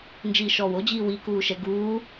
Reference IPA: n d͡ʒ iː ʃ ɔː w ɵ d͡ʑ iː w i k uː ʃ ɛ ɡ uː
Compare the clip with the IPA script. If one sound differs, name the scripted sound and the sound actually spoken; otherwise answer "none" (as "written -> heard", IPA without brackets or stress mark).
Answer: ɵ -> o